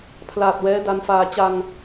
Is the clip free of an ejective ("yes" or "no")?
yes